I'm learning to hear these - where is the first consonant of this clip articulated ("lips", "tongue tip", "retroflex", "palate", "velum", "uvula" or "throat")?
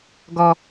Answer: velum